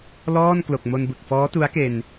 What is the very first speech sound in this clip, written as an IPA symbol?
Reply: l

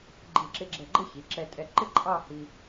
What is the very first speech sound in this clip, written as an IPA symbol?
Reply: ɡ͡ǃ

